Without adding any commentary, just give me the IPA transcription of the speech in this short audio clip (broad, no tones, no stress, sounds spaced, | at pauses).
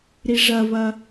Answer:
ɾ i ʐ ɐ v ɐ